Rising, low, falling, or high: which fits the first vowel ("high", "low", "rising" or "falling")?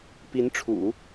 rising